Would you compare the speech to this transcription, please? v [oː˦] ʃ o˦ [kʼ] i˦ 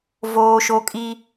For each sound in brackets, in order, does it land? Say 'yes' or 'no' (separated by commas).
yes, yes